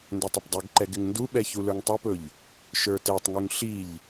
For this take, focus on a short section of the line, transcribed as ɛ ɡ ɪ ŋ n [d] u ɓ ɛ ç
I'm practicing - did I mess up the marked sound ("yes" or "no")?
no